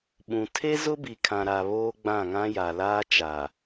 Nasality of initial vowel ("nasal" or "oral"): nasal